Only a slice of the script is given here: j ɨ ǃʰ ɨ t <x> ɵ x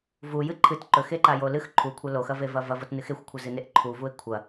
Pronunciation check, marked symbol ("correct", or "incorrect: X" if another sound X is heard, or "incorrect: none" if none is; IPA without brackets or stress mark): incorrect: ǃ